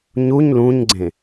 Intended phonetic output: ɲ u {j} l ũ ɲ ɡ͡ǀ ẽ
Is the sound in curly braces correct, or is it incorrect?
incorrect